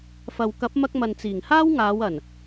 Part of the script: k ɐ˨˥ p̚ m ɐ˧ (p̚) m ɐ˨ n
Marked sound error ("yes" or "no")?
yes